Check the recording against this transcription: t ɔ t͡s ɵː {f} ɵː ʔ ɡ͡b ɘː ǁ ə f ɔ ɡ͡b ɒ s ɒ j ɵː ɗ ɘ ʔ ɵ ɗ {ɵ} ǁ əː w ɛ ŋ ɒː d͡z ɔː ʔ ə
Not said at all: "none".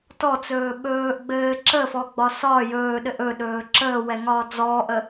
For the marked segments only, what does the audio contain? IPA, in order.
ɓ, ɵː

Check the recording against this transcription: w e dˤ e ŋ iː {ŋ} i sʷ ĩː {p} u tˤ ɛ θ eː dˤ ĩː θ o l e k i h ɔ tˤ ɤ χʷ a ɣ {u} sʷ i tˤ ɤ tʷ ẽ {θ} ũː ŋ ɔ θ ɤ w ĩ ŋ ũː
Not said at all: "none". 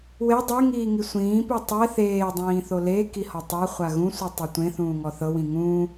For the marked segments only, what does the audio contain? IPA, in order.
ŋ, p, ũ, θ

